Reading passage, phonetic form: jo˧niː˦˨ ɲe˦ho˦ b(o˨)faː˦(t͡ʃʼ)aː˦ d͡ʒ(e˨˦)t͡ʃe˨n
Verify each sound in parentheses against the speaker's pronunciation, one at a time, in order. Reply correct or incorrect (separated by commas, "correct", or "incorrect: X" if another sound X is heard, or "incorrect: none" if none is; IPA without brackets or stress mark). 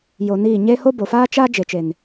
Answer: correct, incorrect: t͡ʃ, correct